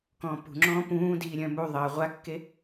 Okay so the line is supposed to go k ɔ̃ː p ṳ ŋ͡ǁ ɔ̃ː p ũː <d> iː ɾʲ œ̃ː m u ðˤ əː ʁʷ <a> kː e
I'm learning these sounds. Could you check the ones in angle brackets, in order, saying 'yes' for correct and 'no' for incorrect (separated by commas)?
yes, yes